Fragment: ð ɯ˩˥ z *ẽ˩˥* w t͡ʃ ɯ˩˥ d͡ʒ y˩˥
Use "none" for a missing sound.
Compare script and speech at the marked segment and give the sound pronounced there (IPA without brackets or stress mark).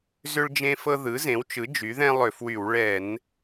ẽ˩˥